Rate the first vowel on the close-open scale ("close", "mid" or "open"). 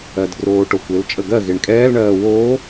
mid